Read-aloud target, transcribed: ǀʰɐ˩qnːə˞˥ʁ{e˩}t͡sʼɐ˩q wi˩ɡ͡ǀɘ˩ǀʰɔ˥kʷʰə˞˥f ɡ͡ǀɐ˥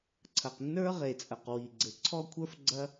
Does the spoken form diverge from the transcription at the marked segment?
no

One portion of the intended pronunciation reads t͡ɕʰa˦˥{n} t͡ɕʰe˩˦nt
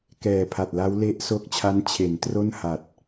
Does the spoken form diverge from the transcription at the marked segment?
no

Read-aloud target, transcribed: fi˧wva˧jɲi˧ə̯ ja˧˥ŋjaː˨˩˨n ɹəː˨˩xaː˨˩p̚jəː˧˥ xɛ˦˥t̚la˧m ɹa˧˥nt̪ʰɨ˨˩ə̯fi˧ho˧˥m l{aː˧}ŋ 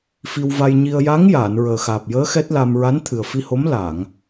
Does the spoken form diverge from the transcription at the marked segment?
yes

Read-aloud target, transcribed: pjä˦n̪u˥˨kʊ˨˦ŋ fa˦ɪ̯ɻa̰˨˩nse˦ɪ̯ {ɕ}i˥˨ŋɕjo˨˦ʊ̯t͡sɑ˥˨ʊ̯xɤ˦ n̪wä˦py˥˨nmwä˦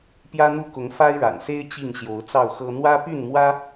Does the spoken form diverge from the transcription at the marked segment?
yes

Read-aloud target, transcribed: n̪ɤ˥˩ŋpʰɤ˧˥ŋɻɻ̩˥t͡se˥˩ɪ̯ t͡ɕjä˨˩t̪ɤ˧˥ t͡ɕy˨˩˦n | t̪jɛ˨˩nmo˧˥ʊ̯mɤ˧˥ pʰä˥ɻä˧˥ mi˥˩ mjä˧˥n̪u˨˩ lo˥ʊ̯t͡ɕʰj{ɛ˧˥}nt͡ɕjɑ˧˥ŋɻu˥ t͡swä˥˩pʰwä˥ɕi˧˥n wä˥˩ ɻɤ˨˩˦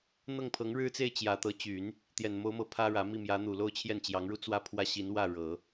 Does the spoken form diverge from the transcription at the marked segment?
yes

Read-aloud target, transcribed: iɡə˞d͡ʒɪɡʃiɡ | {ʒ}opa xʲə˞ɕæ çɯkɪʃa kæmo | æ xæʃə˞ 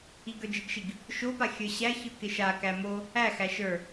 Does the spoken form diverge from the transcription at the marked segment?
yes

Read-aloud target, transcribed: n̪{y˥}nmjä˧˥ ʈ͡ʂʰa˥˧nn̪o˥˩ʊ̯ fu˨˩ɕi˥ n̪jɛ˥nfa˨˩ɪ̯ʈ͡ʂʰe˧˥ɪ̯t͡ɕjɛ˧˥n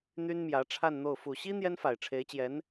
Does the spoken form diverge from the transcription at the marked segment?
no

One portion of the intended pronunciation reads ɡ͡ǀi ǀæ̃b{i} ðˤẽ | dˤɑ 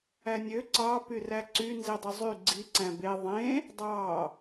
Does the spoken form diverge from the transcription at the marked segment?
yes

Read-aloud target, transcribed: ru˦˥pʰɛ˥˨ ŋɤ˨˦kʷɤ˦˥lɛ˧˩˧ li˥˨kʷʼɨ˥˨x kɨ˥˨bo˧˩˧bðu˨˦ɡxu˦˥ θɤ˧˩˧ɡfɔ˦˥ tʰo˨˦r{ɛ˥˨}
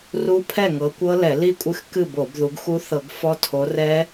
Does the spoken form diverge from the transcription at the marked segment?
yes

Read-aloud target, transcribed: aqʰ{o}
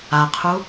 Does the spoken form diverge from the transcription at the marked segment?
yes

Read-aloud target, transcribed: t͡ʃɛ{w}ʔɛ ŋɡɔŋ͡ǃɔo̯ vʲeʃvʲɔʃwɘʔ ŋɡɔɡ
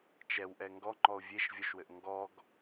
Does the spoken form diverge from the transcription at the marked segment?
no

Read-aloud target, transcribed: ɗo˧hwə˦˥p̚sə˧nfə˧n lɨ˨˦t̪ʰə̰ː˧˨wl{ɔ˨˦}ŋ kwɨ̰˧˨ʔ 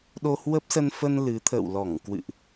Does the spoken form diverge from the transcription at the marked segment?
yes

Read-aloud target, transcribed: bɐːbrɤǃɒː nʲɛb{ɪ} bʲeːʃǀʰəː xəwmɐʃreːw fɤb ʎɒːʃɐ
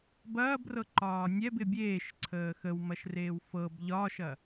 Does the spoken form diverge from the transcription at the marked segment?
no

